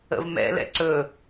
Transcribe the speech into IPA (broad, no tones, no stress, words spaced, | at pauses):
ə̰vmɛ̰lɛ̰ ǀɵ